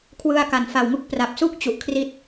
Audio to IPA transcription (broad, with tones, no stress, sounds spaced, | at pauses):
kʰ w ɯ˧ a̯ k a˨˩ n f a˨˩ w ŋ u˦˥ k̚ p r a˨˩ p̚ s u˥˩ k̚ t͡ɕ u˨˩ ʔ kʰ r i˦˥ t̚